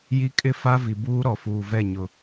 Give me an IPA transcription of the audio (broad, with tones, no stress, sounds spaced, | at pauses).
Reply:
j i˦ kʼ ɪ˦ f a˦ v i˨ b uː˦ ɾ ɔ˨ f uː˨ v ɛ˦˨ ɲ ʊ˨